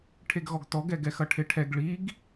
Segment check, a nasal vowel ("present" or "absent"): absent